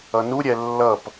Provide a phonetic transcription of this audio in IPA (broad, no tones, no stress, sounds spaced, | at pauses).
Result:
ʌ n u ɾʲ ɛ lː ʌ p